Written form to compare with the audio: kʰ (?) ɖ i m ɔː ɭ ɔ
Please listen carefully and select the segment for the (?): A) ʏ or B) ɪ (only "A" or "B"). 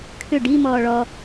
A